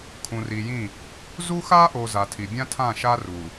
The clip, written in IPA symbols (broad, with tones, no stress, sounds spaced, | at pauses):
kʰ ũ˨ r i˨ j ĩ˦˨ | z u˦ x a˦ ʔ o˨ z a˨ tʰ i˨ bʲ ã˦ tʰ ã˦˨ ʃ a˦ r u˨